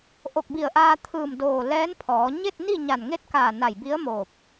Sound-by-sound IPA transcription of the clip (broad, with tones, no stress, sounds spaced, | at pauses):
ʔ o˧˩ k̚ b i˧˩ ə̯ ʔ aː˧ t̪ʰ ɯː˧˩ m d oː˧˩ l ɛː˧˥ n pʰ ɔː˩˧ ɲ e˥˨ t̚ n i˥˨ ɲ a˧˩ n ŋ e˥˨ t̚ k aː˧˩ n a˧˩ j b i˧˥ ə̯ m oː˧˩ p̚